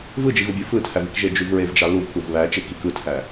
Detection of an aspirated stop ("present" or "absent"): present